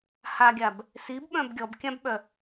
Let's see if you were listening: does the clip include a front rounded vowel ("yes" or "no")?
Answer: yes